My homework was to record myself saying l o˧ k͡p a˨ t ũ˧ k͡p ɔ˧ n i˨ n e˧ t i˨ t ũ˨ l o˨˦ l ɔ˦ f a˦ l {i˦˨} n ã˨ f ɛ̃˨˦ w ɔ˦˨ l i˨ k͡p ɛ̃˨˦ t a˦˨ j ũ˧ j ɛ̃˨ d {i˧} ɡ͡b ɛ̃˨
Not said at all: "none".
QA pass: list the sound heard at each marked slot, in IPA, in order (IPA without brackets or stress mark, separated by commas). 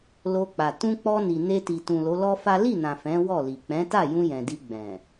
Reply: i˦˨, i˧